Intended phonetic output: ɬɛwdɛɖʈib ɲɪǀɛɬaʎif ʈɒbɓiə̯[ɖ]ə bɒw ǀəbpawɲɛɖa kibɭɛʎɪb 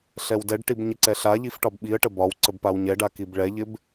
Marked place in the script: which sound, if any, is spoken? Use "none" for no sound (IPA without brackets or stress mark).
ʈ